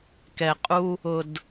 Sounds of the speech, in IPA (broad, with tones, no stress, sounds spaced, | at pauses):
k ɛ˧ qʼ u˦ | ʊ˧ d